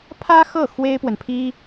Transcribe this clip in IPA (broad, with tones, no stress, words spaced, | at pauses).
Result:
pʰä˥xɤ˥˩ xwe˥ɪ̯pwə˨n pʰi˥